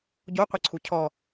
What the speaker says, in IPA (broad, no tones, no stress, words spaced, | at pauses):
ɟo qʷiǀʰucʰɔ